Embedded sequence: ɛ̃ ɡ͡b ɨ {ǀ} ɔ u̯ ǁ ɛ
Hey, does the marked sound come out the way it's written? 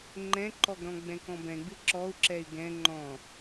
no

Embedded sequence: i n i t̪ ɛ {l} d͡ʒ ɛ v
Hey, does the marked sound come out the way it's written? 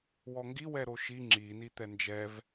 no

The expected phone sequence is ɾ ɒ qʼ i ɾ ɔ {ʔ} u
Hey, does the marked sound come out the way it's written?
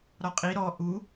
yes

